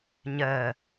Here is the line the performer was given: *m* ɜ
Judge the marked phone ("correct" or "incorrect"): incorrect